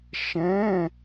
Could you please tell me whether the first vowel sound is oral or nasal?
nasal